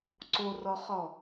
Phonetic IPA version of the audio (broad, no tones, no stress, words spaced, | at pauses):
ǀorɔχɔ